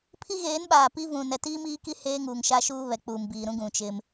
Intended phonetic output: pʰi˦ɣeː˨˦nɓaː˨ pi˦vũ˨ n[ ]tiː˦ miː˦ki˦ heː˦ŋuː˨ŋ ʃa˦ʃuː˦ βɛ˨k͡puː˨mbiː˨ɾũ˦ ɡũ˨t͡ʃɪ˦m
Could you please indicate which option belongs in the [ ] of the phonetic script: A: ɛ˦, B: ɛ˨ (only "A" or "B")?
B